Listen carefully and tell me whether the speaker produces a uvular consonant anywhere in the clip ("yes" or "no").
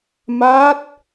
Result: no